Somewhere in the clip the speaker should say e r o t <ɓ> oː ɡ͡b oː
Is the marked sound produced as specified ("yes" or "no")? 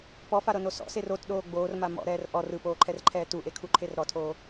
no